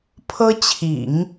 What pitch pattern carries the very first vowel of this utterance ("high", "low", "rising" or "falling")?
high